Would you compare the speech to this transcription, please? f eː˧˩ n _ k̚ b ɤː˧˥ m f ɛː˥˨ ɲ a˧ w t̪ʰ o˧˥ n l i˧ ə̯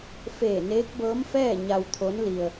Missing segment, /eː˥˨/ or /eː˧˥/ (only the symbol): eː˧˥